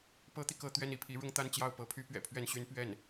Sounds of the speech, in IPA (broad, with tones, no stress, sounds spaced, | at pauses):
p ɤ˥ t̪ i˨ k ɤ˥˧ t̪ ɥ ɛ˥˧ n i˥˩ pʰ i˧˥ ɻ ʊ˥˧ ŋ t̪ a˥˧ n t͡ɕ j ɑ˥˩ ʊ̯ p ɤ˧˥ pʰ y˥ p ɥ ɛ̰˨˩ pʰ ɥ ɛ˥˩ n ɕ y˥ n p ɥ ɛ˥˩ n